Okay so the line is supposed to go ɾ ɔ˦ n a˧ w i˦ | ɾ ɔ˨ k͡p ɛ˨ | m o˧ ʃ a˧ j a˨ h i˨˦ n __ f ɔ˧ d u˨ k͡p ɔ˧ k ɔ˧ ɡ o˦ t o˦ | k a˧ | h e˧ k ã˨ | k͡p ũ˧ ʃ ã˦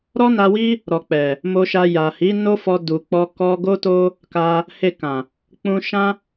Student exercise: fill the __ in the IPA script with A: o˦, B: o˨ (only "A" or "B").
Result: A